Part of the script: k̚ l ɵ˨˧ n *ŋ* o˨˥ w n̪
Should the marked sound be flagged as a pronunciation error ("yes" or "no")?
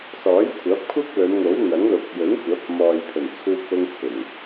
no